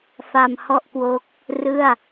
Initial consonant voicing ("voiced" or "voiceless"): voiceless